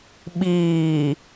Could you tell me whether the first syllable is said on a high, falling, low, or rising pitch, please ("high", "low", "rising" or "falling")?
low